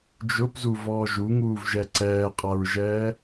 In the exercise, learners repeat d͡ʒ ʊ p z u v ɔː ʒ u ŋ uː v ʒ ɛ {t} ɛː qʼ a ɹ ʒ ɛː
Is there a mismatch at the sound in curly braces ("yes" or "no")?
yes